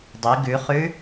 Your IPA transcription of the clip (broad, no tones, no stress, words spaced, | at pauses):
dˤi ɡʉχʉ